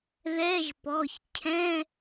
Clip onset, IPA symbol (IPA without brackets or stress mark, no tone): ð